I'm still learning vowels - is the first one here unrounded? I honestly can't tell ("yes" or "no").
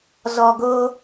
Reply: no